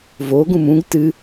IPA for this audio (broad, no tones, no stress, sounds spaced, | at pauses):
v o ɡ ũ m ũ ɡ t ɨ